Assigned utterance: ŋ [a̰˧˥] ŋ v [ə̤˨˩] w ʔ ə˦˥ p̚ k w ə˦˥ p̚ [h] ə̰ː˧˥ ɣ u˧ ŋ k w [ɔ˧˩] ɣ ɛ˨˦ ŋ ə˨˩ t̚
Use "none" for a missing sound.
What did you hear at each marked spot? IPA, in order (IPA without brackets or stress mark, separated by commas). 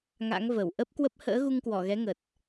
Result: a̰˧˥, ə˧˩, h, ɔ˧˩